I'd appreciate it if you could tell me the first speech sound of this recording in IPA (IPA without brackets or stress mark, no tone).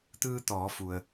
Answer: t̪